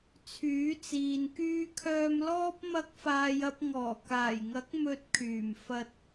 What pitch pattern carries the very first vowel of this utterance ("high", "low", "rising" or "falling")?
rising